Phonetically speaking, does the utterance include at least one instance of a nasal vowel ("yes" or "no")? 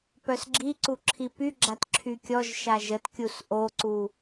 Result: no